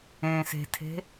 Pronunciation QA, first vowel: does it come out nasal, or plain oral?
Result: nasal